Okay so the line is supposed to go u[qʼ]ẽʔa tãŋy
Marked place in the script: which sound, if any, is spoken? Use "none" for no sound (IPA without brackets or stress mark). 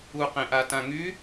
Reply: q